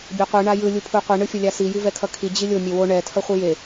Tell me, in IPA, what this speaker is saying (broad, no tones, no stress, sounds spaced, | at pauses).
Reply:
bʲ ɛ qʷ ɯ ɳ a j ɯ lʲ u pʰ u qʷ i ɳ ɯ fʲ ʌ lʲ a s i j i v ɛ kʰ ʌ kʰ i d͡ʑ i lʲ o mʲ e w o ɳ ɛ tʰ ʌ χʷ ɯ j e